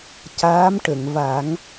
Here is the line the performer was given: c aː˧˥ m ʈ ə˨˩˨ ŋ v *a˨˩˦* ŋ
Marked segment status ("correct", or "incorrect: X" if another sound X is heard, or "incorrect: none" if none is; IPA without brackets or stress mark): correct